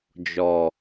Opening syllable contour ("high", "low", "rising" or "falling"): low